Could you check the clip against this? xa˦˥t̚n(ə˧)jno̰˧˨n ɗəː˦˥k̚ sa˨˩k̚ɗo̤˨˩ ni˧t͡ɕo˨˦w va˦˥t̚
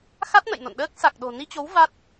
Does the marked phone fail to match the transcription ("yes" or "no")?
yes